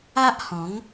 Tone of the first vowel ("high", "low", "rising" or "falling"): high